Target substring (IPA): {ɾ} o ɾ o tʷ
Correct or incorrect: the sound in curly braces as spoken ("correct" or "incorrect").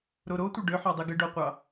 correct